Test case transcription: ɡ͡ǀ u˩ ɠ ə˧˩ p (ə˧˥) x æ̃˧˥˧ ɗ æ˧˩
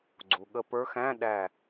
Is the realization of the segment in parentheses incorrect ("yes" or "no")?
yes